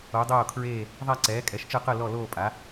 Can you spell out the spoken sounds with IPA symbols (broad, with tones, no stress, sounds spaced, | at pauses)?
o˨˥ dˤ oː˥˧ kʰ ɹ eː˥˧ | ðˤ a˥˧ ǀ ɛː˨˥ kʼ ɛ˨˥ ʃ t͡ʃ ɯ˥˧ q ɯ˥˧ l ɔ˥˧ l oː˥˧ pʼ a˨˥